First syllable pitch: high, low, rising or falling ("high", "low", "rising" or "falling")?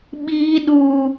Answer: high